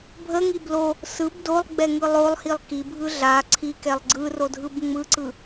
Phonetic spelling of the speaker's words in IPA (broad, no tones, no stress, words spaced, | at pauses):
bʱəŋi blo | sɯb dolˠɡ͡bɛŋɯ lˠolˠhilˠ kibʱɯ ɮa ǀʰikɛlˠ ɡ͡ǀɯrodʱɯb ŋ͡mɯǀɯ